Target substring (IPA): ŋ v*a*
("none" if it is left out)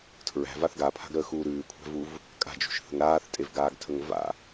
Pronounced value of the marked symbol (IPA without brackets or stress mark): a̰